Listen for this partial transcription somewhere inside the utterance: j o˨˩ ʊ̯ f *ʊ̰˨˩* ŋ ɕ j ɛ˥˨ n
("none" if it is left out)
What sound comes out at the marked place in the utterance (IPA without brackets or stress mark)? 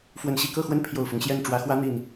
ʊ˦